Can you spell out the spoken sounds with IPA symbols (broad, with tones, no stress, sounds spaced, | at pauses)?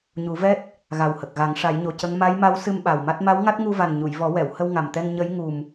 ɲ u˨˩˦ v ɛ˦˥ t̚ | ɣ a˨˩ w h ə˨˩ k̚ ɣ a˨˩˦ ŋ ʂ a˨˩˦ j ɲ o˨˩ c ə˧˥ ŋ m a˧˥ j m a˧˥ w s ɨ˧ m ɓ a˨˩ w m a˦˥ t̚ m a˧˥ w ŋ a˦˥ t̚ ŋ u˧ v a˨˩ n ɲ u˨˩˨ j v ɔ˨˩˦ w ɛ˨˩˨ w h ə˧ w ŋ a˨˩ m t̪ ɛ˧ ŋ ɲ ə˧˥ j ŋ u˨˩ m